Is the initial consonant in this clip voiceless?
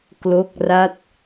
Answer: yes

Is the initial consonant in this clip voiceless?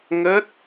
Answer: no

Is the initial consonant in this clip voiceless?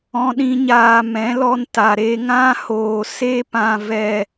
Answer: no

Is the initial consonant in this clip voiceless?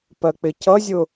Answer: yes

